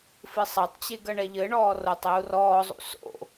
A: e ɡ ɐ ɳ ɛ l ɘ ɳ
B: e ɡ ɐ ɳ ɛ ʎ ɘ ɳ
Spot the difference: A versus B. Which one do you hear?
B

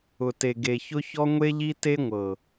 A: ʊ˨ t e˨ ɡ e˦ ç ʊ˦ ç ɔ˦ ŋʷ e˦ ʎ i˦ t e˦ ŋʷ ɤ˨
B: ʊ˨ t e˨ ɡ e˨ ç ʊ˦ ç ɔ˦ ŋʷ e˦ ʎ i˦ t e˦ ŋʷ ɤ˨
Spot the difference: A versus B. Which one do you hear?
B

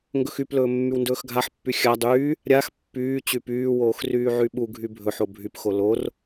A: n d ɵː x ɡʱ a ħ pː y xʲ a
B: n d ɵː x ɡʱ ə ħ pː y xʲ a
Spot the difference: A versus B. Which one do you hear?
A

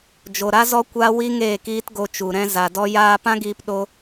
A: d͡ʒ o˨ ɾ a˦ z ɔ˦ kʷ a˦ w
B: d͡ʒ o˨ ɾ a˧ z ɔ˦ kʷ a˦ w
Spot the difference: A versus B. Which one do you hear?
A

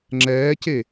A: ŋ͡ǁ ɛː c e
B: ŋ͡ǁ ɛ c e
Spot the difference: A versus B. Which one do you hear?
A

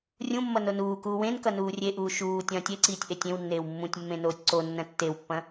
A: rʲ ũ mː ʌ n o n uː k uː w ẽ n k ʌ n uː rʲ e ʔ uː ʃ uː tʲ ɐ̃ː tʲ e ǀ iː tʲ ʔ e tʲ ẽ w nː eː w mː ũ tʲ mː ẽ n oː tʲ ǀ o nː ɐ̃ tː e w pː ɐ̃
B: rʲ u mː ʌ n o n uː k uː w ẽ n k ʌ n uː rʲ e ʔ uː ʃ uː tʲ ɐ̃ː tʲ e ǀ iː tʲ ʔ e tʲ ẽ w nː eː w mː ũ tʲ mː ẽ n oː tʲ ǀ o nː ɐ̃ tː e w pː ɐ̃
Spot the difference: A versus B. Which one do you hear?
A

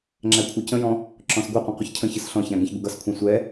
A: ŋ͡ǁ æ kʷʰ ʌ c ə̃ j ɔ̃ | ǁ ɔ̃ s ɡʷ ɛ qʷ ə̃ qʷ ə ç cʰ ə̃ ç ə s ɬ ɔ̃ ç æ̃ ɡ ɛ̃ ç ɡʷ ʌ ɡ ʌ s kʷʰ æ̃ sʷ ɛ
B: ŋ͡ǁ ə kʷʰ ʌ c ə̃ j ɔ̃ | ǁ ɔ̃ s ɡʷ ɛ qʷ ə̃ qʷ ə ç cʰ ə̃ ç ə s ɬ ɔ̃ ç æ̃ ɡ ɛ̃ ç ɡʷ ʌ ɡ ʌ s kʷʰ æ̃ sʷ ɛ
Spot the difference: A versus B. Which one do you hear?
A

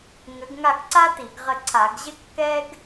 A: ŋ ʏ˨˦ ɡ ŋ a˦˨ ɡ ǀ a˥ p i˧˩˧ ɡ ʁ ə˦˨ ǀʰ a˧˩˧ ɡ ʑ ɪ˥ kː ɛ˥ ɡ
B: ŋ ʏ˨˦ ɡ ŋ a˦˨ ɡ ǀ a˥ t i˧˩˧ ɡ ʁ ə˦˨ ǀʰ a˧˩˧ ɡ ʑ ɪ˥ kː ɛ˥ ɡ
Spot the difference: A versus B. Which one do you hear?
B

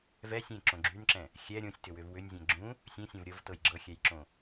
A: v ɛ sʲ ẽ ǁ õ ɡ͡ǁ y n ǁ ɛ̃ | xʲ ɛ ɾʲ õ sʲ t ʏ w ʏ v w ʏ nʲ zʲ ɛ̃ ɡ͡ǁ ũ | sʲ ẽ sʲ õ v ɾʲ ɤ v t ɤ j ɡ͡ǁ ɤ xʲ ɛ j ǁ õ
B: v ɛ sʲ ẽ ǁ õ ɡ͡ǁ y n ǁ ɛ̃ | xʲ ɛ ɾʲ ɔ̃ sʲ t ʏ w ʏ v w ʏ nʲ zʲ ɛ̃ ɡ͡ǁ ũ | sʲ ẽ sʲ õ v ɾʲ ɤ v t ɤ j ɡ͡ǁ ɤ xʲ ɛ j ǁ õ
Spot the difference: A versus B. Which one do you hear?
A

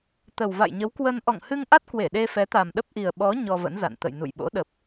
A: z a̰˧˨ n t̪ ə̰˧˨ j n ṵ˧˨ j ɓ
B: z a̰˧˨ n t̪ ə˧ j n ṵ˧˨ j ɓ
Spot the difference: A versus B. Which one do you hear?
A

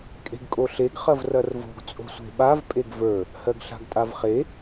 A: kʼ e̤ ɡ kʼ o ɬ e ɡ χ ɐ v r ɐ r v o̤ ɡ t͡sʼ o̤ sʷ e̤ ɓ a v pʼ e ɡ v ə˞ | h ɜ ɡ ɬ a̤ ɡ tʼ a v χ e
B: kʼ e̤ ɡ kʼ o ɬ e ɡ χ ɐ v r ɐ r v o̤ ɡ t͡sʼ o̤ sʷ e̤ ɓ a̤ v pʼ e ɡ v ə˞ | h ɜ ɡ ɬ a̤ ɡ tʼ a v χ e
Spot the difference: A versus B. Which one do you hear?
A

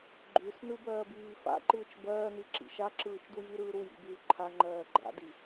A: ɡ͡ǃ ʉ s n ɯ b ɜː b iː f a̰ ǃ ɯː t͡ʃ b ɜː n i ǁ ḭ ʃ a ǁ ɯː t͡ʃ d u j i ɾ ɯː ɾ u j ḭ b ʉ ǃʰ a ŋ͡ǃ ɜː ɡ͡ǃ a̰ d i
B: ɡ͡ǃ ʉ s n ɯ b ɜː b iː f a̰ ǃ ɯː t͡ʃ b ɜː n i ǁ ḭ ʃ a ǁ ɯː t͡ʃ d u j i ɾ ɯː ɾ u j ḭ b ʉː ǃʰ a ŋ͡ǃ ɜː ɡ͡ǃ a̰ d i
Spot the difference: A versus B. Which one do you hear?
B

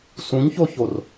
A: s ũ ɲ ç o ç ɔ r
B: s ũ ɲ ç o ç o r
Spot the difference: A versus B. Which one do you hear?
B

